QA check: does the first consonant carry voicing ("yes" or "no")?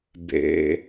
yes